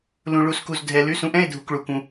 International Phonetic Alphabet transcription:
lũ˩ ɭu˩sku˩zdʱɛ˩ ly˩˥sũ˩˥ʔɛ̃˧˥˧e̯ dʱu˩kɭu˩kũ˩

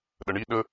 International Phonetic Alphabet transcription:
ɗəɳi ɗə

